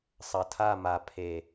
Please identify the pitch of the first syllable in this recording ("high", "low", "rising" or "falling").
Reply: low